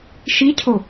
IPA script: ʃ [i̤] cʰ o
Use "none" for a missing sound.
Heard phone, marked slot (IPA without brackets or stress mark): i